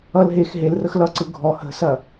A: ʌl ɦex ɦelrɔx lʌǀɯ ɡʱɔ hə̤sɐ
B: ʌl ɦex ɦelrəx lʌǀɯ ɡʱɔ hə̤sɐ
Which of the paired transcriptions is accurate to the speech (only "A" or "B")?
B